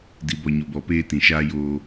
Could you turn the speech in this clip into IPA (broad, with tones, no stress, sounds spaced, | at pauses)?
d i˨ b ɔ˨ ɲ o˨ b ɔ˨ p eː˦ t ĩ˨ ʃ aː˦ j oː˦